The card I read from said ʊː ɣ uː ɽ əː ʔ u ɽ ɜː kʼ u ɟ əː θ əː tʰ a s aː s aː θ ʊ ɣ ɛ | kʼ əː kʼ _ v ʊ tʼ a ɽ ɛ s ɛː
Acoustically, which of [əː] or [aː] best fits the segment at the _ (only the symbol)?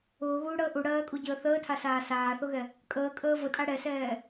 əː